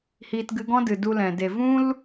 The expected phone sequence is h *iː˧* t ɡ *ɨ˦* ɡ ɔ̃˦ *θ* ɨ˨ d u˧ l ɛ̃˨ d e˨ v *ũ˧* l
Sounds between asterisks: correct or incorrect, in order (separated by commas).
correct, incorrect, incorrect, incorrect